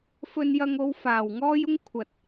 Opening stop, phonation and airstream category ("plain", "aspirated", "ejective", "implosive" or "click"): aspirated